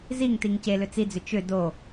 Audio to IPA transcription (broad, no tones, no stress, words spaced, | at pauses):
ziŋtiŋ celʏ t͡sid͡zʏ t͡ʃʏ do